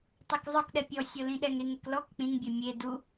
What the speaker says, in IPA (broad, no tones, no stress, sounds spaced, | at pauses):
tˤ ɛ k zˤ ʊ k ɗ ɛ pʲ ɔ sʲ o l ĩ ɗ ɛ ŋ ɾ i ŋ e k l ɔ k k͡p ĩ ŋ bʲ ɛ mʲ e d u